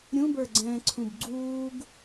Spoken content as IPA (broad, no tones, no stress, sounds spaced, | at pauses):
ɾʲ ũ b ə˞ ɡ͡ǀ ɛ̃ː ǀʰ ũ b ɡ͡ǀ uː ɡ